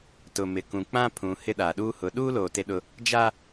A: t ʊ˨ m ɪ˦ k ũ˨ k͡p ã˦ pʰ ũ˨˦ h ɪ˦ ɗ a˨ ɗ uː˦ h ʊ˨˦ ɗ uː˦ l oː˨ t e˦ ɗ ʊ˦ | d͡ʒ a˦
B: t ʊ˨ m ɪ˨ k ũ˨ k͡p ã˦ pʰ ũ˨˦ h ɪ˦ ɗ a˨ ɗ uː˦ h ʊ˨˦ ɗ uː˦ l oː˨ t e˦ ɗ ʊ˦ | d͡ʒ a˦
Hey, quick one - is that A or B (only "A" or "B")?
B